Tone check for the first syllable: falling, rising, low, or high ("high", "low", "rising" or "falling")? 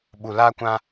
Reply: low